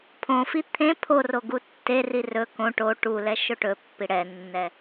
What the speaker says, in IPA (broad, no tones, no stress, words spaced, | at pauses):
pʰõfi t̪ʰẽ pʰoro ɡutːeri rɵ kõ ʈo ʈulɛ ʃɵʈɵpːi ɽɛnːɛ